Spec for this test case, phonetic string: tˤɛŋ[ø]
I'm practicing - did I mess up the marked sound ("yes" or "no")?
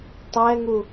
yes